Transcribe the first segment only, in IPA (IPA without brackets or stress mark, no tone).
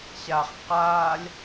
ɕ